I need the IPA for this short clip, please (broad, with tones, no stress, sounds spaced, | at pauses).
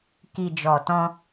k i˨ d͡ʒ ɔ˨ t ɔ̃˧